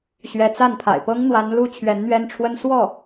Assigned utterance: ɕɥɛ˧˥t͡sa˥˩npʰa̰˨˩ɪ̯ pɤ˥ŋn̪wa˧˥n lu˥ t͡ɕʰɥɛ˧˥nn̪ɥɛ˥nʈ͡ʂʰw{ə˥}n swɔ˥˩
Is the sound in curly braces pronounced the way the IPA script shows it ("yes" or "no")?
yes